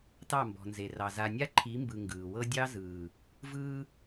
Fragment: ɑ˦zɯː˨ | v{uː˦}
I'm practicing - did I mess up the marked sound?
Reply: yes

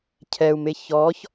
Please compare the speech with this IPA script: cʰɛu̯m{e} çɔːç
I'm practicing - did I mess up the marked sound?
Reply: no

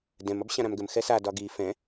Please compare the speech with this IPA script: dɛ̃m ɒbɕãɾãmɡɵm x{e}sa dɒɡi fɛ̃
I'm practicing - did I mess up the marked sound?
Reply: yes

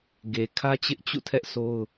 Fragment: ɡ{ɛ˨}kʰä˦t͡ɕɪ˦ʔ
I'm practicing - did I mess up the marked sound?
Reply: yes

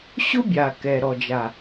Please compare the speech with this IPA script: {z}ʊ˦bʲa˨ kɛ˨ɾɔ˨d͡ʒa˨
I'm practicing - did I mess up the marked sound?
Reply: yes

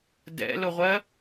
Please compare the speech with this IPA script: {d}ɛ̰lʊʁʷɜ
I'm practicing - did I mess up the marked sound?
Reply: no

